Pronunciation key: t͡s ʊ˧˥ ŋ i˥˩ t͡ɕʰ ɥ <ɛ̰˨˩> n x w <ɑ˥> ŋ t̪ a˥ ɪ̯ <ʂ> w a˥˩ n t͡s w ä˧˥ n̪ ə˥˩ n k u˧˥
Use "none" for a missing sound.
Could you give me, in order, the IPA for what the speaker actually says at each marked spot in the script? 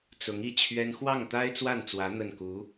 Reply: ɛ˥, ɑ˥˩, t͡s

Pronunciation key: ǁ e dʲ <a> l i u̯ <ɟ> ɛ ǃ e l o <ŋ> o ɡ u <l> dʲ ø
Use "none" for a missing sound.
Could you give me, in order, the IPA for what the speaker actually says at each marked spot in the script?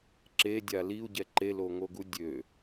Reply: a, ɟ, ŋ, none

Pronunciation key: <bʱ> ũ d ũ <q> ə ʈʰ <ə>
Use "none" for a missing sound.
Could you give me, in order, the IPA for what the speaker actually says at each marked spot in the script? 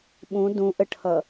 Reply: ɓ, ʔ, ʌ

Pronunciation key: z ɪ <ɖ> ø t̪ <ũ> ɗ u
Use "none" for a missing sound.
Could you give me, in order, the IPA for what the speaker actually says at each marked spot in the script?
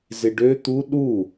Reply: ɖ, u

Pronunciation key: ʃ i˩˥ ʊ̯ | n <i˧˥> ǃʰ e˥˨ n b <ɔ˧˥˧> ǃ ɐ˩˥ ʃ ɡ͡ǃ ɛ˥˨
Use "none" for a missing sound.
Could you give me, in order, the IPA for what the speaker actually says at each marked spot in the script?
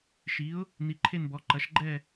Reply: i˩˥, ɔ˩˥

